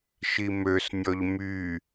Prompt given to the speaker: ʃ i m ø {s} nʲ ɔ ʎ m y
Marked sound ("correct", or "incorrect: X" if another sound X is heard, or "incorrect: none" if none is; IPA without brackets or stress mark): correct